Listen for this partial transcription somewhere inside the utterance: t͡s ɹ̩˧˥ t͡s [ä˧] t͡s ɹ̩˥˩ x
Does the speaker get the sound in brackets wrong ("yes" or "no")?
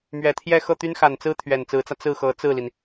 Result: no